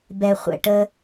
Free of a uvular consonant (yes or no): no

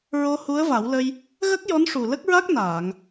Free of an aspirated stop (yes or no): yes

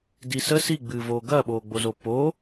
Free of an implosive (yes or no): no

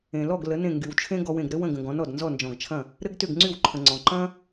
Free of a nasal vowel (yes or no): no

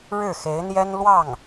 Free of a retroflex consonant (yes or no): no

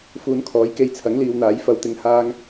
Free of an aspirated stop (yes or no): no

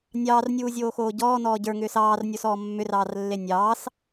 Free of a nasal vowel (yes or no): yes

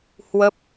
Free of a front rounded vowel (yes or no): yes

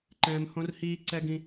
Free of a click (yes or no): no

